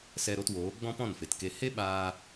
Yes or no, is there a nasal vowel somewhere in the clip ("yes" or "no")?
yes